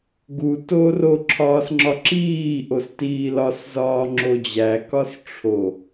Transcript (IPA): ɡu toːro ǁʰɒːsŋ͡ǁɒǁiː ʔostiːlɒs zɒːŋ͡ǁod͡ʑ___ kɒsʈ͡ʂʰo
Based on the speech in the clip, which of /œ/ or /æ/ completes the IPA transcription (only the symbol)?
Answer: æ